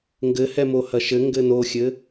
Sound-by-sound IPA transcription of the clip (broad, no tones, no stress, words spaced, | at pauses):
ŋɡɘhɛmo hɐʃɘŋɡɘ noxʲɘ